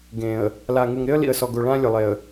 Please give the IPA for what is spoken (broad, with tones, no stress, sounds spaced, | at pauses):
ɡ ẽː˨ ə̯ | l a˨ ŋ u˨ ŋ ɾ ɪ˦ ə̯ l ḭ˨ ə̯ s ɔ˨ ɡ o˨ ɭ ãː˦ lʲ ʊ˨ lˠ e˨ ə̯